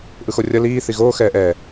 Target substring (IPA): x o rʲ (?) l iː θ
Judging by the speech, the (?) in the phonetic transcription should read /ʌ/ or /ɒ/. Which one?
ʌ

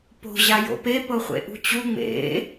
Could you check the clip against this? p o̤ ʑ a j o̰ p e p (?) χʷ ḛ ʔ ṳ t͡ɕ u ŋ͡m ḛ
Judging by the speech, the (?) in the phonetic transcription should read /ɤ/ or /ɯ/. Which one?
ɤ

